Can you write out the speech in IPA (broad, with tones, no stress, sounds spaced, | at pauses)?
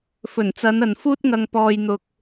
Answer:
f ɵ˨˩ n t͡s ɐ˨˧ n ɐ˨ n f uː˥ t̚ ŋ ɐ˧ ŋ p ɔː˧ j n̪ ʊ˧ k̚